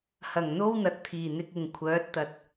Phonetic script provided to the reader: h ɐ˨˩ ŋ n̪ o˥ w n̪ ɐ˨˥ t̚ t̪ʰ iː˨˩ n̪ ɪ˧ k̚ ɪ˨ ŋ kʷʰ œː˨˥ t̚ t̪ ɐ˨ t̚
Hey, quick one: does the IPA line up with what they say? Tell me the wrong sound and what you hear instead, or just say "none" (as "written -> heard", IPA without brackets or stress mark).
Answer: none